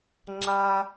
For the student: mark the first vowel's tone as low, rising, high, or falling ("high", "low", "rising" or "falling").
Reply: low